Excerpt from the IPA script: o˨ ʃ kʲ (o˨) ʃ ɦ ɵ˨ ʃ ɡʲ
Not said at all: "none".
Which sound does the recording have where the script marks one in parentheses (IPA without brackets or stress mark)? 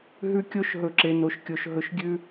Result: o˨